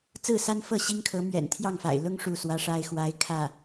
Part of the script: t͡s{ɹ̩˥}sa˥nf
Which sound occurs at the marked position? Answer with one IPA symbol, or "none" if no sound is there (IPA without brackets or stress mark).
ɹ̩˥˩